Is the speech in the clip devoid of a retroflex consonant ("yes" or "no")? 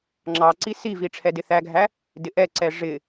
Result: no